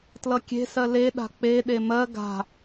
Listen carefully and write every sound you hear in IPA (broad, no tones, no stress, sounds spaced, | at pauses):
t l ʌ kʲ e̤ s ɜ l e ɗ a̤ k͡p e ɗ e m ɜ ɡ a̤